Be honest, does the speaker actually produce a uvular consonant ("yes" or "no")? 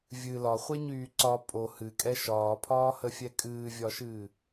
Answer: yes